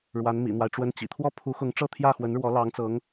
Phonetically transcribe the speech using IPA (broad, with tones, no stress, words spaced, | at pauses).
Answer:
ɻwa˧˥nmḭ˨˩n̪wa˦ɪ̯ ʈ͡ʂwə˧˥nt͡ɕḭ˨˩t̪ʰwɔ˥ pʰu˧˥xʊ˧˥ŋ ʈ͡ʂɤ˥˧t̪ʰjä˥˩xwə˧˥nɻwɔ˧˥ lɑ˧˥ŋt͡sɤ˧˥ŋ